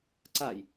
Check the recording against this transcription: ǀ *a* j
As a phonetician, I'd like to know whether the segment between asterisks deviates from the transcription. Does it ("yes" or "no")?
no